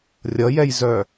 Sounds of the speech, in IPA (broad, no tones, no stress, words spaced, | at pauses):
rʲʌjɛjzœ